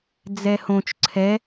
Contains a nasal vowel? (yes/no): yes